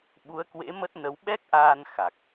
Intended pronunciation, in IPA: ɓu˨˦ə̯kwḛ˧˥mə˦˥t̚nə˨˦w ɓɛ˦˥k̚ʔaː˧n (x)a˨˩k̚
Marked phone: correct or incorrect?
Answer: correct